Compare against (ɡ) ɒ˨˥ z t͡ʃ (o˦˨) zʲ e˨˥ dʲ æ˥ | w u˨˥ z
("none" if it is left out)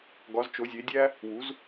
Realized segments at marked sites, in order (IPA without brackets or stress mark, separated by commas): ɡ, o˨˥